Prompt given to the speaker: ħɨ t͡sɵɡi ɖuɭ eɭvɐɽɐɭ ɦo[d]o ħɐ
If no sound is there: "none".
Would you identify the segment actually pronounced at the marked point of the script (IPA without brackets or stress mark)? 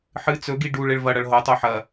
tˤ